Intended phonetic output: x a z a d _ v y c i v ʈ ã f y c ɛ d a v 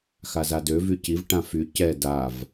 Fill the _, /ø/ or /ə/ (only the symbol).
ø